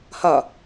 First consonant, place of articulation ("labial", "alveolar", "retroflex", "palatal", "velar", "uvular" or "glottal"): glottal